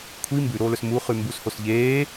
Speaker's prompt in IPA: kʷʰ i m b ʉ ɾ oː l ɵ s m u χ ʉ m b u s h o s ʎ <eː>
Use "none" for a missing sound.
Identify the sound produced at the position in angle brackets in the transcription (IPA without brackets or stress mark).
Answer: eː